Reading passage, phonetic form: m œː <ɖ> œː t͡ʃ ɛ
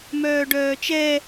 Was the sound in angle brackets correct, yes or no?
yes